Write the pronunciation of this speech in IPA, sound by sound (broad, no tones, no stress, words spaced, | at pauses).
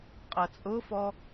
qʼʌt͡sʼʊfɔ